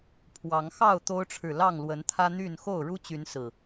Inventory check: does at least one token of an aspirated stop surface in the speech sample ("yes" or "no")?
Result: yes